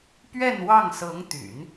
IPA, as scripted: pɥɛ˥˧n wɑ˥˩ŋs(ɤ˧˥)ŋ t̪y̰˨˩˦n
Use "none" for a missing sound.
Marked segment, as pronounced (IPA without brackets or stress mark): ɤ˧˥